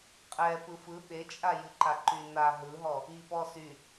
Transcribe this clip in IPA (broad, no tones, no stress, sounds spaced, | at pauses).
qʼ ɛ p ɯ f ɯ ɓ e t͡ʃʼ a j ɨ ǃ a ǃ y n a ɦ ɯ ɦ ɔ | i p ɔ s y